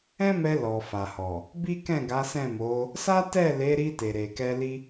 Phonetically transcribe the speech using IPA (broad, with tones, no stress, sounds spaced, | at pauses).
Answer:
ɛ̃˦ m ɛ˧ l ɔ˨ f a˨ h ɔ˨ | b i˦ k ɛ̃˦˨ ɡ a˨˦ s ɛ̃˦˨ m o˨˦ | s a˦ t ɛ˦˨ l e˨˦ ɾ i˧ t e˨ ɾ e˨ k ɛ˧ l i˦